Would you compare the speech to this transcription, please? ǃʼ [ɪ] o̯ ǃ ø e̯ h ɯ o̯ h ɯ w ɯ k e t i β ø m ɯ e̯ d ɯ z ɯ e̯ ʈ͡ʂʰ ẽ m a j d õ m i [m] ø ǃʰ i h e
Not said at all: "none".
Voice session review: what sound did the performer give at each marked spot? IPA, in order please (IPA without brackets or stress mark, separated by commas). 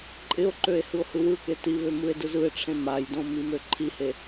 ɪ, m